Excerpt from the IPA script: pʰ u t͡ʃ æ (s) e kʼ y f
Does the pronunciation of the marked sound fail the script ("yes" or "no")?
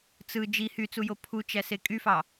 no